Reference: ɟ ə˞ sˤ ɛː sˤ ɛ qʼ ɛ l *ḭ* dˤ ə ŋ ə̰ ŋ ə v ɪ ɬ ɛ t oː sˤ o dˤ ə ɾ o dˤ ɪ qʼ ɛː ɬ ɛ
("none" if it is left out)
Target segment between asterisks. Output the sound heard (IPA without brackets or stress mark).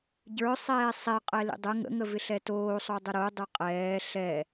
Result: ḭ